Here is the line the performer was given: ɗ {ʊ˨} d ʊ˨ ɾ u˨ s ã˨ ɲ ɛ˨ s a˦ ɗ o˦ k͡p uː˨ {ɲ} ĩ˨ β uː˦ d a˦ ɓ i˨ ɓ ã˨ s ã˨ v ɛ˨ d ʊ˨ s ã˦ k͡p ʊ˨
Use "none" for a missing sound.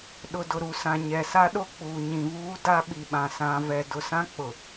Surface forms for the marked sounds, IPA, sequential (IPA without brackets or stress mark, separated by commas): ʊ˨, ɲ